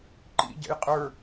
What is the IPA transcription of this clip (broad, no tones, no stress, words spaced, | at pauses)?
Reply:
ǃḭ ɟɛ̰jqʼə˞